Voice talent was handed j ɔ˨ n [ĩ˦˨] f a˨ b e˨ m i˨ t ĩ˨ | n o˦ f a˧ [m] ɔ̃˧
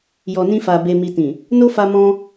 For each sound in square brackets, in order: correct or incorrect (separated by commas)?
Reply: incorrect, correct